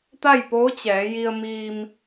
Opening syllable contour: falling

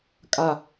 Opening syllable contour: low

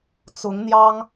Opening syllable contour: rising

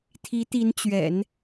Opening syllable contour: rising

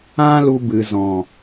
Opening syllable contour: high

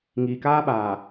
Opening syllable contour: low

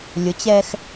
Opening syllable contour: rising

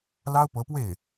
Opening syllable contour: high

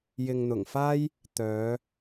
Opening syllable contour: low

